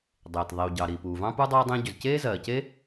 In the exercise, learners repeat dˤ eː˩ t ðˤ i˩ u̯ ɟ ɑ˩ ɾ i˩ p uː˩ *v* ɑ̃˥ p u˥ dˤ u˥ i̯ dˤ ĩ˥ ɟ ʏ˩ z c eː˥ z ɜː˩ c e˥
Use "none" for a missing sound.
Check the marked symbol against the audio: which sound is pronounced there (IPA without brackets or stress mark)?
v